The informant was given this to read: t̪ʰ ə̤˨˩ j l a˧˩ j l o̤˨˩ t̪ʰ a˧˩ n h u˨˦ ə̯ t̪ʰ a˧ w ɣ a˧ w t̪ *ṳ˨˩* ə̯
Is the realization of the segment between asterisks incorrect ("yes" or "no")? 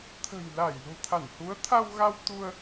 yes